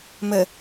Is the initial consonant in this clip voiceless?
no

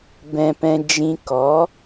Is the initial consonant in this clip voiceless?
no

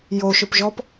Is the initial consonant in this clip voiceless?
no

